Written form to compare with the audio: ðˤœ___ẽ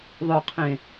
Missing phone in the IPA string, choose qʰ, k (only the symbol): qʰ